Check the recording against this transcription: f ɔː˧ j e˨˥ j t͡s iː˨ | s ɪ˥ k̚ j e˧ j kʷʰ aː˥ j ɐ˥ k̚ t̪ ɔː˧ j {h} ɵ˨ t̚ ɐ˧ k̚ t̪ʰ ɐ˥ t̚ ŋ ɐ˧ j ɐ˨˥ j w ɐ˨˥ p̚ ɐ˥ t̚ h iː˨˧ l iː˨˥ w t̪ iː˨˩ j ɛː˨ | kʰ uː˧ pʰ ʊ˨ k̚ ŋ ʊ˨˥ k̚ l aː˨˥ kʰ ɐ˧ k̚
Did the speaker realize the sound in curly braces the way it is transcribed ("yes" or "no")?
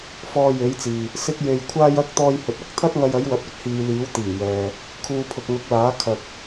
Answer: yes